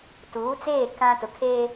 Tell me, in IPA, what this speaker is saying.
t uː˨˦ t͡s eː˦˨ k ã˦ t ʊ˨ kʰ eː˦

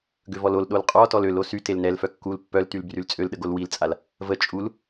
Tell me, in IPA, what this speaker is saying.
ɡ ø v ɔ l o l ɗ o l qʼ ɔ t ɔ l ø l o s y t e l n ɛ l f œ kː u l pː œ l t y l b r y l t͡sʼ ø l ɗ ə ɡ o l w i l t͡sʼ a l | v ə t͡ʃʼ u l

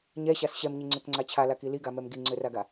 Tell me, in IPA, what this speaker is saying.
ɲ ɛ ɕ a s ɕ ɛ m ɲ i ŋ͡ǀ ø k ŋ͡ǀ a t͡ɕʰ a l a k i l i ɡ a m ɛ m ɡ i ŋ͡ǀ ø r a ɡ a

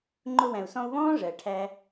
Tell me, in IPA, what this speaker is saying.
ŋ͡ǃ ʊ˧ w æ̃˨ u̯ s ɔ̃˧ u̯ β ɔ̃ː˦ ʐ ɜ˨ ʈʰ æ˧

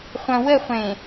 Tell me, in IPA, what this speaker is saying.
χʷ ɐ̃ w ə χʷ ẽ

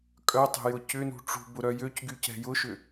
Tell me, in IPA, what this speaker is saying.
kʼ œ tˤ e̤ j ʊ c ʏ n ṳ ʈ͡ʂ ṳ b ʊ ɾ œ j ø c ɡ y c ɛ̤ j ʊ ʃ ʏ

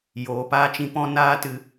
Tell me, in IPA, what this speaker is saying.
j oː˨ p aː˧ t͡ʃ ĩ˧ p ɔ̃˦ n aː˦ t ɨ˧

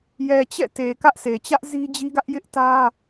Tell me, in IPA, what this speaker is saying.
j ɛ˨ t͡ɕ ɛ̰˦˨ t e˨ k ä˦ ʔ s e˨ t͡ɕ ä˦ ʔ z i˦ d͡ʑ i˦ ɡ ä˦ ʔ j ɪ˦ ʔ t ä˦

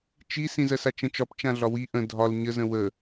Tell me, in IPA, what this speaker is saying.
t͡ʃ i s ĩ z ɜ s a t͡ʃ ə̃ t͡ʃ ɒ p t͡ʃ ã ɮ ɒ w i ʔ ə̃ dʱ ɒ l ɲ ə z ə̃ w ə

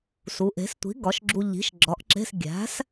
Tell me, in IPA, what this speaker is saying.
s u˩˥ ʔ e̤˩˥ s tʷ i̤˩˥ ɡ ɒ˩˥ ʃ ɡ͡ǁ u˧ ʎ i̤˩˥ ʃ ɡ͡ǁ ɒ˩˥ ʔ ǁ e̤˧˥˧ s ɡʲ æ̤˩˥ s

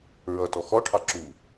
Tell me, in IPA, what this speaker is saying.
ɹ ʌ t ɔ x ɔ ʈʰ ɑ ǁ uː

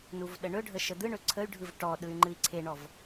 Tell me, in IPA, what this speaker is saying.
n u v ɗ ə ɳ ɵ ɖʱ ə ʃ ə d̪ ɯ ɳ ɵ ǀʰ ə y̯ ɖʱ ɯ v ʈ ɔ ɗ ɯ y̯ ŋ͡ǃ ɨ i̯ ǀʰ e ɳ ɔ v

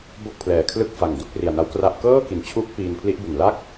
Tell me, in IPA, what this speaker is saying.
b o˥˩ k̚ pʰ l ɛː˨˩ kʰ l ɯ˥˩ k̚ f a˨˩ ŋ d u˥˩ k̚ r i˨˩ a̯ n a˦˥ w k r a˥˩ ʔ k ɤː˥˩ k i˩˦ n t͡ɕʰ uː˦˥ k̚ p iː˧ n pʰ l i˦˥ ʔ b u˨˩ n l a˥˩ k̚

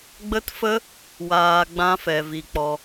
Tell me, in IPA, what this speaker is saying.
ɡ͡b ə˦ t f ə˦ | w aː˧ ɡ͡b ã˦ f ɛ˧ v i˧ k͡p ɔ˧

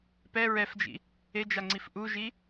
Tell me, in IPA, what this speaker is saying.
p ɛ ɹ ɛ f d͡ʒ ḭ | e d͡ʒ a ŋ͡ǀ i f ʔ u ʒ i

